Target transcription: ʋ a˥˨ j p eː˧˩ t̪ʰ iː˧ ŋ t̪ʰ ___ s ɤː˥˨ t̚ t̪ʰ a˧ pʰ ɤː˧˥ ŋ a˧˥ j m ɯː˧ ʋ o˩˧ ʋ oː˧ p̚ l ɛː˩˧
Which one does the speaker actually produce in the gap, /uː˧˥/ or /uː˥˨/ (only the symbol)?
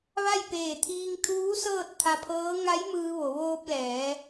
uː˧˥